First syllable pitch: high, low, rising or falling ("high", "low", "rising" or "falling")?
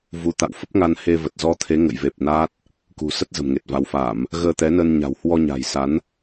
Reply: rising